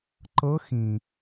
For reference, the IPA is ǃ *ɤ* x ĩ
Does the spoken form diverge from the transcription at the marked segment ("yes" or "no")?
no